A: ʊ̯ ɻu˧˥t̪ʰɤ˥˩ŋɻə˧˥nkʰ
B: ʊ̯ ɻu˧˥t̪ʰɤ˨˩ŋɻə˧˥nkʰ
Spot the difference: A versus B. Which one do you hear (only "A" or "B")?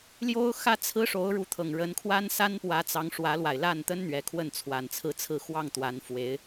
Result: B